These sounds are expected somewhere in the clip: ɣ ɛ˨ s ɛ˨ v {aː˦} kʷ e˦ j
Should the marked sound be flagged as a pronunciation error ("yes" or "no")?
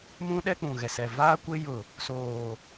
no